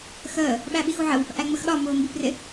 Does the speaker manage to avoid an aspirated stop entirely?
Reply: yes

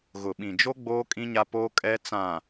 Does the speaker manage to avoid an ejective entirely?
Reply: no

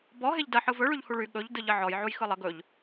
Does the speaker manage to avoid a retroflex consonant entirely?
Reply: no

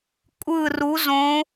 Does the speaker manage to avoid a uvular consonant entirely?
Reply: yes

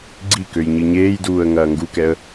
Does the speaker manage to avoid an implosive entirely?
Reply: yes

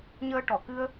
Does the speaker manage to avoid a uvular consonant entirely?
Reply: yes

